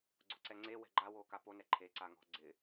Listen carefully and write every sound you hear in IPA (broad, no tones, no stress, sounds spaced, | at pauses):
ɡ͡ǀ ʊ ǀ ɛ ŋ͡ǀ e w ɛ̤ ɡ͡ǃ a w oː k a p o n ɛ ǃʰ e ǀ a ŋ ɔ̤ ɡ͡ǀ ɪ